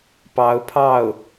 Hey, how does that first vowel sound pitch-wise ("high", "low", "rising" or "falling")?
rising